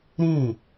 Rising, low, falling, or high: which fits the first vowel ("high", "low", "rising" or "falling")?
falling